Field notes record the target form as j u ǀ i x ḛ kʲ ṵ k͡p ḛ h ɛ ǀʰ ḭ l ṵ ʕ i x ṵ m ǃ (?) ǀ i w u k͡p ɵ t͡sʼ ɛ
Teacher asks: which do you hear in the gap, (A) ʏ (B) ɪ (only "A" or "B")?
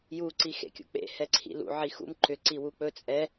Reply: A